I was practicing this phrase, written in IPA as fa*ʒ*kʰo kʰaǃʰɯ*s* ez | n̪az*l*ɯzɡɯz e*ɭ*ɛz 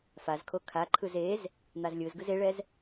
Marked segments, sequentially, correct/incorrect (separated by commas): incorrect, incorrect, incorrect, correct